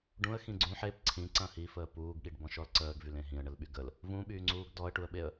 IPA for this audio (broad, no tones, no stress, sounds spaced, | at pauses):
ɖ ũ ə̯ x ĩ ɡ͡ǀ ũ ħ e p ǀʰ ĩ ǀ ɐ̃ h i f əː p uː ɡ ɠ i ɖ b ɔ̃ ʃ ɔ l ǀ əː ɡ v y l ẽ ɦ ĩ ə̯ ɳ ə l ɓ y ɡ ə l | v ũ ɓ yː ŋ͡ǀ uː ɡ d ɔ ə̯ ʈ u ə̯ ɓ e ə̯